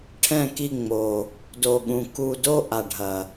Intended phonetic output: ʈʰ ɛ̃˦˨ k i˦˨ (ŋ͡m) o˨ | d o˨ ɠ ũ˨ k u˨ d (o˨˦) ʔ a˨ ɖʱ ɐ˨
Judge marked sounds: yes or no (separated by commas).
yes, no